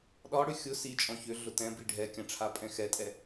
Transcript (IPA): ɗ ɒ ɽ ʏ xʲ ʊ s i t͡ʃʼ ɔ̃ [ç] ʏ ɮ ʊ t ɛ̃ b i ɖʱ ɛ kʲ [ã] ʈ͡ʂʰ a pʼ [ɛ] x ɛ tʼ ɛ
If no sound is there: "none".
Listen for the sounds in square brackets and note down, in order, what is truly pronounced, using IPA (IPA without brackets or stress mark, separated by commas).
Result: ç, ã, ɛ̃